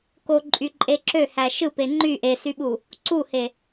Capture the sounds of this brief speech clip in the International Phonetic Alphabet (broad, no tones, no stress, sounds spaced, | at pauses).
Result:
k o ǃʼ y ǃʼ e ǁ ø h æ ʃ ɯ p e ŋ͡ǃ y ʔ e s y ɓ u | ǀ u h e